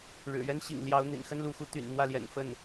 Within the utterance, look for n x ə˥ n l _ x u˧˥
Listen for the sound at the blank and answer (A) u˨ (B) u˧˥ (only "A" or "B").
B